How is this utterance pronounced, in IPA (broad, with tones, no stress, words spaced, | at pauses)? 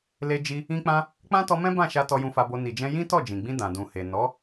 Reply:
le˦d͡ʒi˦ | ĩ˦k͡pã˦ | k͡pã˦tɔ˧mɛ̃˦ bã˦˨ʃa˧ tɔ˧jũ˧fa˧bo˧ ni˨d͡ʒɛ̃˧ jĩ˦tɔ˦˨d͡ʒĩ˨ɡ͡bĩ˧ dã˨dũ˨he˨ nɔ˨˦